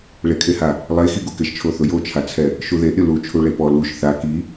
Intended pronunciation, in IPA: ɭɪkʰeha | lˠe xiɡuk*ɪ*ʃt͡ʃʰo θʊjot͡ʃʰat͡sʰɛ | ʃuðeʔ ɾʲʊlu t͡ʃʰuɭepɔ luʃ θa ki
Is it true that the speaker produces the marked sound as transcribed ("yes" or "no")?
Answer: yes